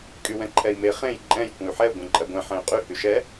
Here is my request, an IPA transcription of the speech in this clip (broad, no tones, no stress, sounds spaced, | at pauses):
kʼ y w ɛ̃ ǃʰ ɛ i̯ m e χ ẽ j ǃʼ ɛ̃ j kʷ ə̃ y̯ ħ ɛ u̯ ɡʷ ẽ ǃʼ ɜ ɡʷ ɛ̃ ħ ɛ̃ y̯ qʼ y h y ʃ ɛ